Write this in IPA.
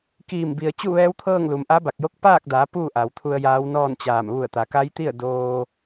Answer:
k iː˧˩ m b i˩ ə̯ t͡ɕ u˥˨ ʋ ɛː˧˥ w t̪ʰ ɤː˥˨ ŋ l u˩ m ʔ a˧˥ b a˧˩ k̚ j o˧˥ k̚ p aː˥˨ k̚ d a˩˧ p uː˥˨ ʔ a˩ w t̪ʰ u˧ ə̯ j aː˧˥ w n ɔː˥˨ n t͡ɕ aː˧˩ m ʋ u˧˩ ə̯ t̪ a˩˧ k a˧˥ j t̪ i˥˨ ə̯ d oː˧

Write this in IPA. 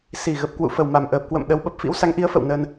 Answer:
s i˨˩ ɣ ə˨˩ p̚ k w ṵ˧˨ f ə˨˩ w m a˨˩ m ʔ əː˨˩ p̚ k w ə̰˧˨ m ɗ ə˨˦ w ɓ ə˨˩ p̚ f ḭ˧˥ w s a˨˦ ŋ ʔ i˨˦ ə̯ f ə̰˧˨ w n əː˧ n

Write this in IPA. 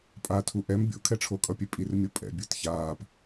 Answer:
pʼ a tʰ u ʔ ɛ m bʲ o̰ kʰ ɛ ʈ͡ʂʰ o kʼ ʌ pʲ e pʼ i r mʲ o pʼ ɛ̰ bʲ ɯ t ç aː p

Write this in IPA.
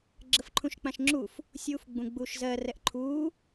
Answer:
ɡ͡ǁ ə f ǃʰ ũ ʃ k͡p ã ʃ ŋ͡ǁ u f | sʲ uː f ɡ͡b ũ ɡ͡b uː ʃ z ɜ r ɛ ʔ ǃʰ uː

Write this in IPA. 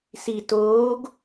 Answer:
s i t oː ɡ

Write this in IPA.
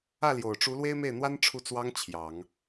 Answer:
ä˥˩ l j o˨˩ ʊ̯ ʈ͡ʂ u˧˥ l w e˥ ɪ̯ m e˥˩ ɪ̯ n̪ w a˥ n ʈ͡ʂʰ u˥˩ t͡s w ɑ˥ ŋ t͡ɕʰ j ɑ˨˩˦ ŋ

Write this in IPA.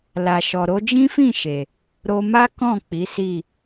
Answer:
l a˨ ʃ ɔ˨ ɾ o˧ d͡ʒ ĩ˦ f ĩ˦˨ ʃ e˨ | ɾ o˧ m a˦ k ɔ̃˦˨ k͡p i˨˦ s i˦˨

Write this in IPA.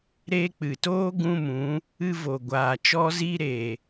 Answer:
ɾ eː˧ k͡p ɨ˨ t oː˧ ɡ ũ˦ m ũ˨˦ | ɨ˧ v o˨ ɡʷ aː˨ t͡ʃ ɔ˧ z i˧ ɾ e˨

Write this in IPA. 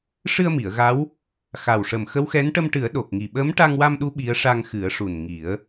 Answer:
ʂ ɨ˧ ə̯ m i˨˩˨ ə̯ ɣ a˧˥ w | x a˨˩ w ʂ ə˨˩ m x ə˧˥ w x ɛ˧˥ n ʈ ə˧ m ʈ ɨ˨˩˦ ə̯ ɗ o˨˩ k̚ ŋ i˨˩ ɓ əː˧˥ m ʈ a˧ ŋ w a˧ m ɗ u˧˥ ɓ i˧˥ ə̯ ʂ a˧ ŋ x ɨ˨˩˦ ə̯ ʂ u˨˩ n ŋ i˨˩˦ ə̯

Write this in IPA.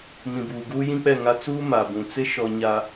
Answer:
m ĩ˨ b uː˨ ɡ uː˦ j ĩ˦ k͡p ɛ˦˨ ŋ a˦ t͡s uː˦ m a˨ b ũ˨ t͡s ɪ˦ ʃ ɔ˨ ɲ a˨

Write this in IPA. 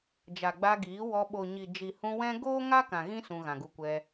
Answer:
d͡ʒ a˨ ɡ͡b a˧ ɡ iː˨˦ w ɔ˧ ɓ o˨ ɲ i˨ d͡ʒ i˨ h ũ˧ w ɛ̃˦ ɡ oː˦ ŋ a˦ k ã˨ ɣ ĩ˦ s ũ˧ ɣ ã˨ ɡ u˧ kʷ ɛ˧

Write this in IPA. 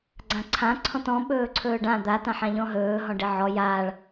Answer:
ɡ͡ǀ ã ǀʰ ã ǀʰ ɔ̃ t ɔ̃ ɓ ɵː ǀʰ ɵː ɖ ã d̪ a t ã ħ ã ʎ ɔ̃ ɦ ɵː ɦ ɔ̃ ɖ e ʕ ɔ j aː ɭ

